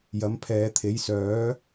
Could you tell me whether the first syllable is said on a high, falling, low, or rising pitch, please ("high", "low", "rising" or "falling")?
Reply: rising